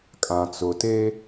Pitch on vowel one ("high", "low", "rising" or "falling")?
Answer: low